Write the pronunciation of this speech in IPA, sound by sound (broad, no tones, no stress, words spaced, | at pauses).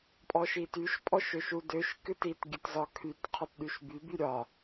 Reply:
pʼɔʃityʃ pʼɔʃøʃudøʃ kɨtit ɡʲɨtzɒkʰyt qʰɒtɗyʃby byɾʲɒ